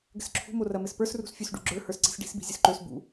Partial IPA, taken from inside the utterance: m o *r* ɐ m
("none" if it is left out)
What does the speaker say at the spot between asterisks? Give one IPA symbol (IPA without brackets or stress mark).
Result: r